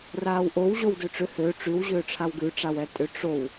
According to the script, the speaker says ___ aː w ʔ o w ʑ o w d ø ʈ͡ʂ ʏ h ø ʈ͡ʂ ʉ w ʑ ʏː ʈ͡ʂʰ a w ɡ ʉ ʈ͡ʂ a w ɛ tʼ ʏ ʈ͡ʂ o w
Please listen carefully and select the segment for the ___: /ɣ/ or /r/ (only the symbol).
r